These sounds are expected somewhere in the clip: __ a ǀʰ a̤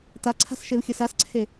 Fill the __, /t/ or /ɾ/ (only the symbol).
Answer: t